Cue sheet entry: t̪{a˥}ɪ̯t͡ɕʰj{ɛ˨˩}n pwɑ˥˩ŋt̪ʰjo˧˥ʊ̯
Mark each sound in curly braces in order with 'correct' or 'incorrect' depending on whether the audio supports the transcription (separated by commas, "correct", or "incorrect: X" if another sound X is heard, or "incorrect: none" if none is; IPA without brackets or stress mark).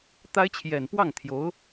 correct, correct